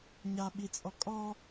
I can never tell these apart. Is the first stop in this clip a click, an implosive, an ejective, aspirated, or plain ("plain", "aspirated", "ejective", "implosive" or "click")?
implosive